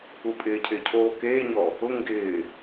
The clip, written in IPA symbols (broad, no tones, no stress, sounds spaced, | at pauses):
u pʼ ɪː cʰ ɪː cʰ oː k eː ɲ ɔ | ʊ ŋ ɡ ɪː